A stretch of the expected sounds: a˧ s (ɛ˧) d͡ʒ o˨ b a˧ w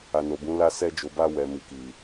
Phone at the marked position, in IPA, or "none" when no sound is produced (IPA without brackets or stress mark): ɛ˧